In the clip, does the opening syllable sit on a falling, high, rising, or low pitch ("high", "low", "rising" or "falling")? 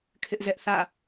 high